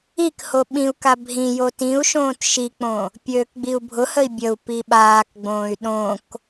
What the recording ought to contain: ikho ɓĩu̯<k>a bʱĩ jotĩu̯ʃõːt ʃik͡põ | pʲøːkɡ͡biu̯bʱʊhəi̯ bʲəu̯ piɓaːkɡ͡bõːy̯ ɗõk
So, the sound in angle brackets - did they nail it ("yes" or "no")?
yes